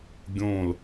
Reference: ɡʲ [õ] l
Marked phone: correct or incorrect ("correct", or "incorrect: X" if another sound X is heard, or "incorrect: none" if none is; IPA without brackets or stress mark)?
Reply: correct